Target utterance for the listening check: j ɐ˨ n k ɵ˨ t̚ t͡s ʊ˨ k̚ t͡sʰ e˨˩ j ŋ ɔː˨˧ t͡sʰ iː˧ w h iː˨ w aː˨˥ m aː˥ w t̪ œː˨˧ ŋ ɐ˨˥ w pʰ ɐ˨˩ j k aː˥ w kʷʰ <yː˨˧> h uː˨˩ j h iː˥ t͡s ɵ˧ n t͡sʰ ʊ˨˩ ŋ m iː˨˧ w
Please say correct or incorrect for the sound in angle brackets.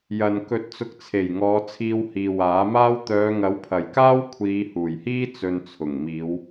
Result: incorrect